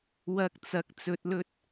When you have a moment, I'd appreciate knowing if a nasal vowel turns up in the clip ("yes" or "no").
no